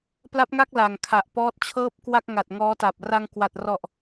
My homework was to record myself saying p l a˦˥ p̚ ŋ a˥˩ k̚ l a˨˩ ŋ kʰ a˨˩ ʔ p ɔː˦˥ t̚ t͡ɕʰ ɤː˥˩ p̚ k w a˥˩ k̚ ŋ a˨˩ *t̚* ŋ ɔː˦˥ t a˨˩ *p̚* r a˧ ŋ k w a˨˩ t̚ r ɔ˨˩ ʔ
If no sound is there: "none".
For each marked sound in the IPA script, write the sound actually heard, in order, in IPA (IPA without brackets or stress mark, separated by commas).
t̚, p̚